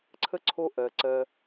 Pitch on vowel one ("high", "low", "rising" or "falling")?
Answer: high